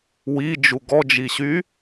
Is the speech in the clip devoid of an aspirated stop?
yes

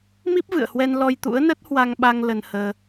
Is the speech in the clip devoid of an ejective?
yes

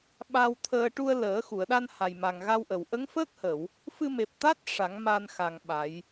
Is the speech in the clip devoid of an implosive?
no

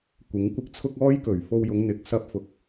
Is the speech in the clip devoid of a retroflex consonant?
yes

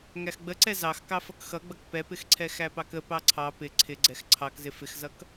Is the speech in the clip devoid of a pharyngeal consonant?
yes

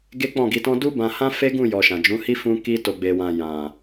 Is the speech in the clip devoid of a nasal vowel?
no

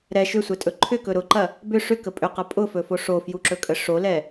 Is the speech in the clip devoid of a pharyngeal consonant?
yes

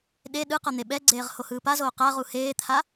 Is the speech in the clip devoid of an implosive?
no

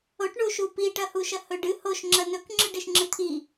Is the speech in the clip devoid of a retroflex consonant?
no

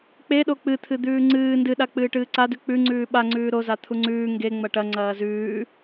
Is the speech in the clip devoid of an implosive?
no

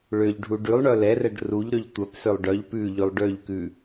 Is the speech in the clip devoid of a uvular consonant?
yes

